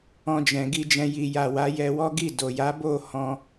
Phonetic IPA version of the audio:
ɔ̃˧d͡ʒɛ̃˨ ɡi˧d͡ʒɛ̃˧ ji˨ja˨ wa˨˦jɛ˧wɔ˦ ɡi˦˨ do˨ja˨˦ bo˦˨ hɔ̃˧

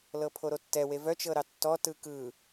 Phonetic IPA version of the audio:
lɤpʰoɾotːɛ wevœ t͡ʃɤɾɑtːɔ tɯkɯ

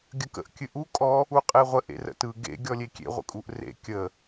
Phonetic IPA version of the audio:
ɡʲəkə̰ʔ kʲɨʔu kʼɔ | uqʼeʁʷə ʔḛrə̰tɯ ɡḛ ɡʲɔlʲekʲḛ ʁʷə̰kʼuʔrḛ kʲə

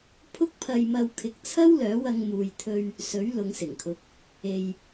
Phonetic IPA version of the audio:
pʰʊ˥k̚pʰɐ˧jmɐ˧wkʰɪ˨˥k̚ t͡sʰɐ˥wlœː˨˥ wɐ˧ŋ muː˨jt̪ʰɵ˧ɥ | sɵ˨˥ɥlʊ˨˧ŋsɪ˨˩ŋkʰʊ˨˥k̚ | e˧j

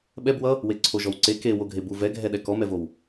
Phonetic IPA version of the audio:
ɓɛb wʌ | weǀʰoʒɔwǀe ke woɡʱebu vɛɡʱɛɗɛ kɔmɛvow

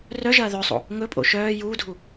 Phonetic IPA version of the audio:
rœʒɐː ðœsˤo̰ | ŋɵpʼo̰ ʃœː juːdʱu

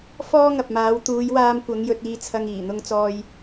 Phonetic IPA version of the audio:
fɔː˥ŋɐ˨p̚maː˨˧w t̪uː˨˧jwaː˧mkʷɐ˨˧ŋ jɵ˧t̚iː˧t͡sʰɐ˧ŋ iː˨˩n̪ʊ˧ŋt͡sɔː˧j

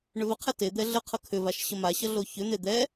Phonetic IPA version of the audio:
ɳʏvəqʰɛ ted̪ɛ ɮəqʰʌ kʰʏvaʃ ɕəmaɕʌ ɮoçʏn̪e d̪ɛ

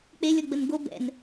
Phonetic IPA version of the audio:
k͡pe lʲɔɡ͡bənɡo bɛ̰n

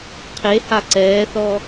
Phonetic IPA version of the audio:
qʰeha ǀɛːθɔ

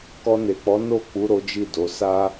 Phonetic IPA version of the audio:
kɔ˧ne˨k͡pɔ˨˦ no˦˨k͡pu˨˦ ɾo˦d͡ʒi˦˨do˨˦ sa˦

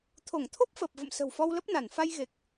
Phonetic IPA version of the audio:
t̪ʰo˧˩ŋt̪ʰo˦˥p̚fəː˨˩p̚ və̰˧˨msə̤˨˩wfɔ˧w lə˦˥p̚na˧˩n fa˧jɣe˨˩k̚

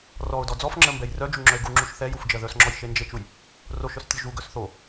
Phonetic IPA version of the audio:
rɔʊ̯dɔ d͡zɔfŋ͡ǁɜ mbɛjrœd͡ʒu ŋ͡ǁœɪ̯ɡuŋ͡ǁuʃ θɛjuf d͡ʒɜðœsŋ͡ǁɔj ʃend͡ʒet͡ʃuj | roʃœs tʲoʒuɡœs θo

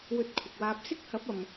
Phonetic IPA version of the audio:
wɵ˧t̚kʷʰɪ˨k̚waː˧p̚ sɪ˥k̚hɐ˨˥p̚ɐ˨m

